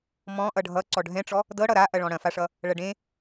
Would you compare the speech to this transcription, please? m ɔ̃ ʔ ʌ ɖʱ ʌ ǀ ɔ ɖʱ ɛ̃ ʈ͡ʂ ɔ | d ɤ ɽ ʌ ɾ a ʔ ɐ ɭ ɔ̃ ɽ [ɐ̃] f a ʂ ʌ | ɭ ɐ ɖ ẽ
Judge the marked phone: correct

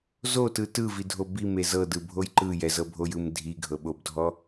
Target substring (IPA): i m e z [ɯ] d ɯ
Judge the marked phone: incorrect: ɤ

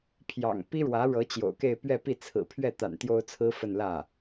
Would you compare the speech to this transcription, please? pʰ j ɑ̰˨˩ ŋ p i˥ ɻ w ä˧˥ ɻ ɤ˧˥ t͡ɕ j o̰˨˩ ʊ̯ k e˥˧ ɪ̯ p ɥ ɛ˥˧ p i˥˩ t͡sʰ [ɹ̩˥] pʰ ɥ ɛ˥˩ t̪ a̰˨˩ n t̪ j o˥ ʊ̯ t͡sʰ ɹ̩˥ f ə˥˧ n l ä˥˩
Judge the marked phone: incorrect: ɹ̩˨˩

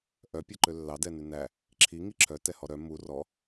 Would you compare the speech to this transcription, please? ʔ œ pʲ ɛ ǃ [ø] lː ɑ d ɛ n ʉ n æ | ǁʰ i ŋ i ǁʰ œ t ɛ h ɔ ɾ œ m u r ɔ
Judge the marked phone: correct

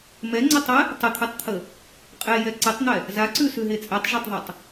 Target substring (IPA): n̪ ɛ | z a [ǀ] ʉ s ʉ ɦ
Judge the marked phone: correct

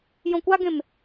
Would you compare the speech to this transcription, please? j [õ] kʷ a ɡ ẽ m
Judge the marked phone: correct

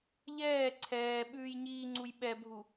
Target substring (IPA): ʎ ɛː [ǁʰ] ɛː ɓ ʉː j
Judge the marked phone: incorrect: ǀʰ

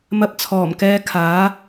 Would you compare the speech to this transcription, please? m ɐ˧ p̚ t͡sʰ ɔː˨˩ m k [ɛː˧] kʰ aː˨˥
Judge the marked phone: correct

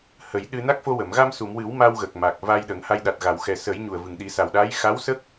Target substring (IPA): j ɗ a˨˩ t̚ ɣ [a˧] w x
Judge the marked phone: incorrect: a˨˩˨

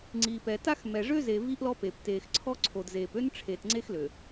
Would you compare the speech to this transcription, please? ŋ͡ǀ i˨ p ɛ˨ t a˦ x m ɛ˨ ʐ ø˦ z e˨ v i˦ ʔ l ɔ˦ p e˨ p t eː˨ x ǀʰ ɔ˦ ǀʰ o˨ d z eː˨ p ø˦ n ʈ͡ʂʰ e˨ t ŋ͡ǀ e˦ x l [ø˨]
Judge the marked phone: correct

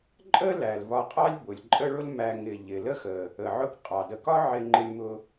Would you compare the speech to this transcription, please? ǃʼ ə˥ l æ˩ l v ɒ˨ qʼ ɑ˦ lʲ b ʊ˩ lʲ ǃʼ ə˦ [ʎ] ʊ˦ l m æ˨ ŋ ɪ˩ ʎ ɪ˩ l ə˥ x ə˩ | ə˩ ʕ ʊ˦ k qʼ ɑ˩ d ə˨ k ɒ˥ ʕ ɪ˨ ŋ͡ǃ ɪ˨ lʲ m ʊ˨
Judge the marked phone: incorrect: ɭ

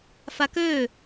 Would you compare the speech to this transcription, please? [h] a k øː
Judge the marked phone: incorrect: f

